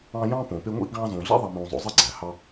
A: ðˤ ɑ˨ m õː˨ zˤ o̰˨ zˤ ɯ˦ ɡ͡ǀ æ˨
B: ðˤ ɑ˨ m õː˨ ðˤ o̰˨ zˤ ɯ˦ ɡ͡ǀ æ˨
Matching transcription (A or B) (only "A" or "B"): A